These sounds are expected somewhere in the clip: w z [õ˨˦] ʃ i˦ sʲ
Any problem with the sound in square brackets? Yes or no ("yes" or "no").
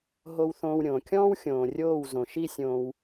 yes